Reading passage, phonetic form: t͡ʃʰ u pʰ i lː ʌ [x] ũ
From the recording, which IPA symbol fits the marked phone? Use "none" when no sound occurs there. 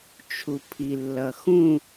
x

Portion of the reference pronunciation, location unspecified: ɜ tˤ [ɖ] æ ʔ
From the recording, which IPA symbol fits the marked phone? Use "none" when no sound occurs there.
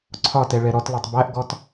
b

